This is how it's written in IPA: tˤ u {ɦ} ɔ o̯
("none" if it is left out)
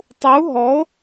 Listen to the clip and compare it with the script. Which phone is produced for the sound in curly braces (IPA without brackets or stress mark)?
ɦ